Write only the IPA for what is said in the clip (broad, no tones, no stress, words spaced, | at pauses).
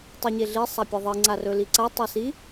tˤuɲeɮi sˤapʲeðˤi ŋ͡ǀarɵliǀa tˤesi